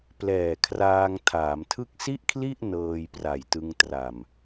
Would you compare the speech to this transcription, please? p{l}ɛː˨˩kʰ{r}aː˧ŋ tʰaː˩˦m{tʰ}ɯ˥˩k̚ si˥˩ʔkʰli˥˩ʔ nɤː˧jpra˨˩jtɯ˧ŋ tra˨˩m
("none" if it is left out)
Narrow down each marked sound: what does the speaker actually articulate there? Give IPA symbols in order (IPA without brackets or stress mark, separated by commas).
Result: l, r, tʰ